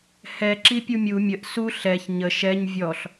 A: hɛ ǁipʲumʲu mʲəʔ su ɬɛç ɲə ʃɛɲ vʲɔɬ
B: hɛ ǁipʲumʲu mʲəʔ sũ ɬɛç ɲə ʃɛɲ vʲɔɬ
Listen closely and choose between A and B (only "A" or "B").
A